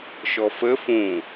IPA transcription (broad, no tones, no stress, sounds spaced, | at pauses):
ʃ ɔ f ə f ũ